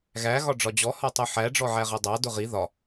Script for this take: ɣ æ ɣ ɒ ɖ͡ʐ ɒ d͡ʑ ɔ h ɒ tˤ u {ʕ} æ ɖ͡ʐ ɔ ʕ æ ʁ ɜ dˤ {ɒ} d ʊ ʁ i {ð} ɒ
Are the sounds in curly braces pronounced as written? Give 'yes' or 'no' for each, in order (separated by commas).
no, no, yes